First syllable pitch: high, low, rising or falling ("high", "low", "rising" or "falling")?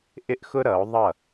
high